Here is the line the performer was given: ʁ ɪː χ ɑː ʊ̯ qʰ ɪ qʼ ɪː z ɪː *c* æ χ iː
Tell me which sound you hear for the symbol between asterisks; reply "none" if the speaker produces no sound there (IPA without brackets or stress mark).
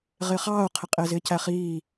c